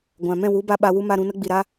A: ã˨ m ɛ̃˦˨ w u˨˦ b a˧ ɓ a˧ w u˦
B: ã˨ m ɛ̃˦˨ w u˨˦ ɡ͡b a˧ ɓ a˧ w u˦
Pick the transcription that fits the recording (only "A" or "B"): A